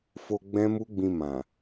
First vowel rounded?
yes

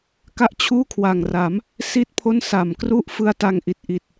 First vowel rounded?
no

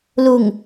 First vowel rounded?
yes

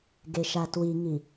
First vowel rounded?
no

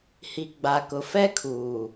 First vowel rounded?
no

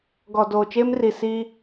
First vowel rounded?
yes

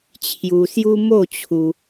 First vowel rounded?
yes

